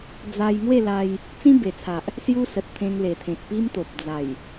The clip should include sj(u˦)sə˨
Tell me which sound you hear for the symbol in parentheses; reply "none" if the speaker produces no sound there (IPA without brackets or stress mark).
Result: u˦